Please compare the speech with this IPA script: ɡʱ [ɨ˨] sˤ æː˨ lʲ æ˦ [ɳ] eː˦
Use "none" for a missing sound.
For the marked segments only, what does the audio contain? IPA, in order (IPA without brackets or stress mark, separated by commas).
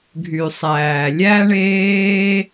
y˨, ɳ